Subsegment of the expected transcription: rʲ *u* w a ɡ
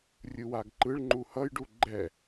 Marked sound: incorrect: ɯ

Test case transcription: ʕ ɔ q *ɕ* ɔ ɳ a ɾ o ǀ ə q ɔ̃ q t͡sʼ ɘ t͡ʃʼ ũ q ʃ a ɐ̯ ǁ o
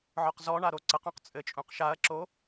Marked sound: incorrect: z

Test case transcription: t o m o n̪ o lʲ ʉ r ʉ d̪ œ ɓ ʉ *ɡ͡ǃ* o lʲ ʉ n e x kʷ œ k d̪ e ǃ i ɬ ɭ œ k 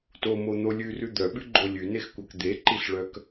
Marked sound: correct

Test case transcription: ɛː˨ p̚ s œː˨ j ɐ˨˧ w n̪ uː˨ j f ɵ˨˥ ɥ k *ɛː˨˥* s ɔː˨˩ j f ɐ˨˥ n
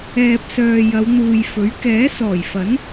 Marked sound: correct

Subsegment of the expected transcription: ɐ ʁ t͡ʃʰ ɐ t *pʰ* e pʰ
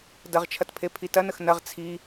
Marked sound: correct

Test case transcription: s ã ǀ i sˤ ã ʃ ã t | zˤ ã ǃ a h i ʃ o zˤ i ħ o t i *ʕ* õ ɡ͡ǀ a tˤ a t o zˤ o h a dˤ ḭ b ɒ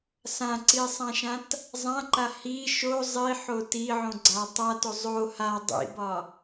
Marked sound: correct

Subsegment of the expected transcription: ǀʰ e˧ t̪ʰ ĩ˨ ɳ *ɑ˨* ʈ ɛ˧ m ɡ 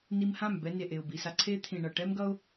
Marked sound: incorrect: ʌ˨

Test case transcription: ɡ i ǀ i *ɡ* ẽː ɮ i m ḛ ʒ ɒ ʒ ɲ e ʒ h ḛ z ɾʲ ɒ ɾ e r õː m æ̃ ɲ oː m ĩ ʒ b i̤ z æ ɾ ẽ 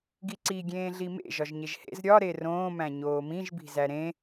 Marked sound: incorrect: ɡʲ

